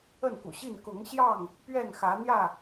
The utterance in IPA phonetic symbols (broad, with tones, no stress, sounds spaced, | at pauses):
ə˥˨ n k ṵ˨˩ ɕ i˥˨ n k ʊ˨˦ ŋ ɕ j ɑ˥˨ ŋ | p ɥ ɛ˥˨ n x ä˨˦ n̪ j ä˥˨